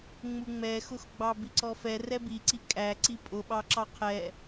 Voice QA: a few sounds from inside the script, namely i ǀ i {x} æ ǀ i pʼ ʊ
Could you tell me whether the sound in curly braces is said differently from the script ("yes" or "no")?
yes